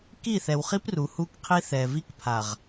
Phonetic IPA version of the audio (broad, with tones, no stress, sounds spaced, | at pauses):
k i˦˨ θ ɛ˨ w χ i˦ p r u˨ h u˦ k qʰ i˦ θ ɛː˨ v i˦ k pʰ a˨ ʁ